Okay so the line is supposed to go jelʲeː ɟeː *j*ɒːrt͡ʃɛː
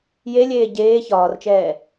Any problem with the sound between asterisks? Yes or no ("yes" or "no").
yes